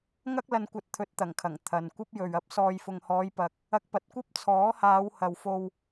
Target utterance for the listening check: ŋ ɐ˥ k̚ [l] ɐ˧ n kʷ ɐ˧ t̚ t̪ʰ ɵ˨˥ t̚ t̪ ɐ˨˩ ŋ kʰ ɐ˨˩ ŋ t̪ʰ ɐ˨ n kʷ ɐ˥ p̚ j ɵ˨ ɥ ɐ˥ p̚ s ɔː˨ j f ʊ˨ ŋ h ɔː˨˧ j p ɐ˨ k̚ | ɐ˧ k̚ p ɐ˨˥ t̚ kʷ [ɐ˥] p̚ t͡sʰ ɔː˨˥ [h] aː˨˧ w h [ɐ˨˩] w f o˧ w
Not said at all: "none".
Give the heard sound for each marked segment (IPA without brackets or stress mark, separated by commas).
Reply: l, ɐ˥, h, ɐ˨